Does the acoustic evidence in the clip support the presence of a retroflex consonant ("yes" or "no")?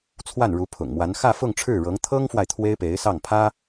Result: yes